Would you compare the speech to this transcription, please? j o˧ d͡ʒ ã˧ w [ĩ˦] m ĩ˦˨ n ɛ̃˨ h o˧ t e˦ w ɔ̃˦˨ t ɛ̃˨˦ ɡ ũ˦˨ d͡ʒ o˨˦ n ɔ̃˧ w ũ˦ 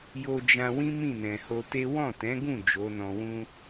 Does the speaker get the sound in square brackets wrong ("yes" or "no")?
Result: no